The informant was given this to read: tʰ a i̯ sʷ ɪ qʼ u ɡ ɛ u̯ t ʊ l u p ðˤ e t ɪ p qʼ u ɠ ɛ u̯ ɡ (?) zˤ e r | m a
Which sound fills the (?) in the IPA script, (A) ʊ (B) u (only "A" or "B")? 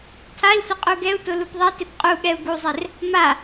B